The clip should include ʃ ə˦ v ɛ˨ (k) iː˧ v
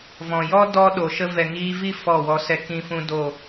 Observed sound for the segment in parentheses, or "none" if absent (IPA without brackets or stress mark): ŋ